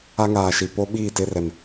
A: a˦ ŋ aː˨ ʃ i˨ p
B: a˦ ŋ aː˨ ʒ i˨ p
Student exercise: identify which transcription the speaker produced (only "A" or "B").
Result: A